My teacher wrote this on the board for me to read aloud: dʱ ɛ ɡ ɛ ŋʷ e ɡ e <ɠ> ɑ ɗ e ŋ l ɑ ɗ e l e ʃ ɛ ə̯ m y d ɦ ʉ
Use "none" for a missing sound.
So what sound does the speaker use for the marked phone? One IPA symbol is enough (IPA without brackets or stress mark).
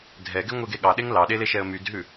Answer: ɠ